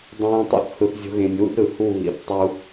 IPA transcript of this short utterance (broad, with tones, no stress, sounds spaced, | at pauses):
dˤ ũː˧ tˤ o̰˦ θ h ɯ˧ θ zʲ o̤˦ ɣ ẽ˧ nʲ w ṵ˦ d ɾ ɯ˨ h u˦˨ β ḭ˨˦ θ tˤ u˦